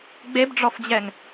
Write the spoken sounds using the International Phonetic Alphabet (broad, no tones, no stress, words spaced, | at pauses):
ɡ͡bebɖ͡ʐɔfd͡ʑɛŋ